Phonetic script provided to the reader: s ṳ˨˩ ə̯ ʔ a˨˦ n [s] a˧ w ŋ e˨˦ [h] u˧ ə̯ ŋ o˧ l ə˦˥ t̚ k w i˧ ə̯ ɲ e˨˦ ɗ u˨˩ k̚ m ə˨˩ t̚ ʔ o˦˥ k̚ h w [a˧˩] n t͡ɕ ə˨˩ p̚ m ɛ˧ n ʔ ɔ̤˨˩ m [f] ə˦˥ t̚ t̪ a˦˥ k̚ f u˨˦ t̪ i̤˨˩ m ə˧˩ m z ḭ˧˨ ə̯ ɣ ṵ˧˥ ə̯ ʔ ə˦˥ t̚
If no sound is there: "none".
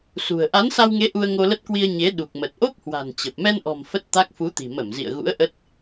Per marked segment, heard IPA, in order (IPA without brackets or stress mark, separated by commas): s, ʔ, a̤˨˩, f